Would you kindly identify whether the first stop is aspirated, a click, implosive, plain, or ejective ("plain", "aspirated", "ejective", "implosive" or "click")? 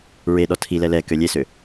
implosive